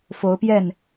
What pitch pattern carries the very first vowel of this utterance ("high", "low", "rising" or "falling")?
rising